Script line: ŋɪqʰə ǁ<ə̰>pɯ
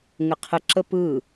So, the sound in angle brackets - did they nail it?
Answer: no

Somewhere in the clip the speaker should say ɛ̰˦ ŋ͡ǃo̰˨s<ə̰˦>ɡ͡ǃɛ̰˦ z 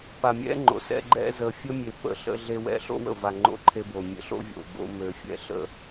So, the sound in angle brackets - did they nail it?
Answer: no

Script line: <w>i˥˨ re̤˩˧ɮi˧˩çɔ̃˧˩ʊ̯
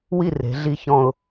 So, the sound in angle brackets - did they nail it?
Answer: yes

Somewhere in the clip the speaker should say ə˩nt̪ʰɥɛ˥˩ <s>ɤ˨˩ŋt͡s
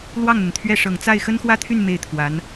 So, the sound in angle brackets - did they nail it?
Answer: no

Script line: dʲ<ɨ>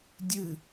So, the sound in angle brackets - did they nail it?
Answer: yes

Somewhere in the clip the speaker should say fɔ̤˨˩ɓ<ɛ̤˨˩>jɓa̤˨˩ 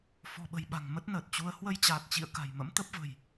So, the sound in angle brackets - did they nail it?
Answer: no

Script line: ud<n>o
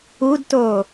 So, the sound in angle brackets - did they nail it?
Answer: no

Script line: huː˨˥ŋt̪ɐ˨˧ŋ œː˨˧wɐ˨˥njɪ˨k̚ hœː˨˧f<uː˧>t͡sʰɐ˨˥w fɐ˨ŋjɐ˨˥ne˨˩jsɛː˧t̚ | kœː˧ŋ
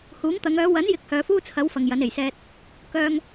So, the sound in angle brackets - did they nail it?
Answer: no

